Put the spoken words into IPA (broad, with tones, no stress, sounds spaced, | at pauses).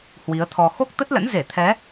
h w i˨˦ ə̯ t̪ʰ ɔ˧ x o˦˥ k̚ t̪ ə˦˥ t̚ l ə̰˧˥ n z e˧˩ t̪ʰ ɛ˨˦